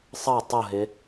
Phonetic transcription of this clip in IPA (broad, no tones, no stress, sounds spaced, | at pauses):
sˤ ʌ tˤ ʊ ɦ ɪ